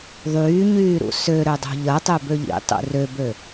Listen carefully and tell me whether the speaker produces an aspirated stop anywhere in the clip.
no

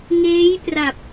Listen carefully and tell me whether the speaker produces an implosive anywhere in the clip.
no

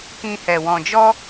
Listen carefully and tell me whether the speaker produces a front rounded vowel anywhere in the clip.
no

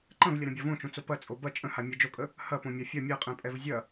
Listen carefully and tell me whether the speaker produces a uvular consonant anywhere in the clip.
yes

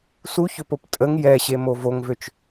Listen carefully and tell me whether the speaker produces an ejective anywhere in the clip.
yes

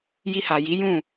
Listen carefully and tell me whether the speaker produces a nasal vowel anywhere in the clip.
yes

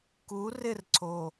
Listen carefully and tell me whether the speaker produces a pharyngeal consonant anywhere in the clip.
no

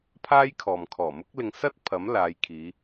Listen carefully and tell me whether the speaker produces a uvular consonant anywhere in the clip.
no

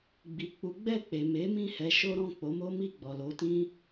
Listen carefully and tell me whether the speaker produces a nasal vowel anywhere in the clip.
yes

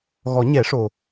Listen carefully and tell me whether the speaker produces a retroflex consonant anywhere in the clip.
yes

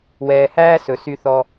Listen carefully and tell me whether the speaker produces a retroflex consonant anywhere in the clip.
no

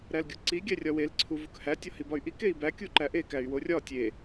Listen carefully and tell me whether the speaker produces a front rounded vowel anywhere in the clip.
yes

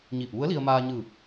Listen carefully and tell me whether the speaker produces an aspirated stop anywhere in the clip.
no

